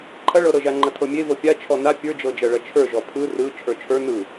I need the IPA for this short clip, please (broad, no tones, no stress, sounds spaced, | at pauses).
ǃʰ ɐ ɭ ɤ ɾ ɤ ʒ a ŋ͡ǃ ɐ tʰ ɤ mʲ e v ɤ pʲ a t͡ʃʰ ɔ n a pʲ ə˞ d͡ʒ ɤ d͡ʒ ɐ ɭ ɐ t͡ʃʰ ə˞ ʒ ɔ pʰ ɯ r ɯ t͡ʃʰ ə˞ t͡ʃʰ ə˞ n ɯ